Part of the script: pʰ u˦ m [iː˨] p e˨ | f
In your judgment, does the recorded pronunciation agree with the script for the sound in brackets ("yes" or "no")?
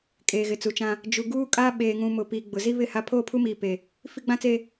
yes